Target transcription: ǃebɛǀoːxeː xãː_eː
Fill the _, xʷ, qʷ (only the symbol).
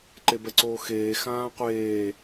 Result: qʷ